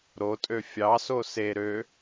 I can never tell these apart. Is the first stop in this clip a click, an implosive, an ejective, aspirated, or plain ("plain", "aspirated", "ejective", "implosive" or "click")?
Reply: ejective